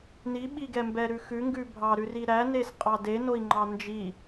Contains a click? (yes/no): yes